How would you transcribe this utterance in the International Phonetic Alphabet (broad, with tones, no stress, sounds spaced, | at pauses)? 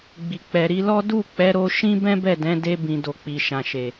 ɡ͡b i˨ k͡p ɛ˨ ɾ i˧ l ɔ˦ d u˦˨ k͡p ɛ˨˦ ɾ o˧ ʃ ĩ˦ b ɛ̃˦ b ɛ˦˨ d ɛ̃˨˦ d e˧ b ĩ˨ d o˨ k͡p i˨ ʃ ã˨ ʃ e˨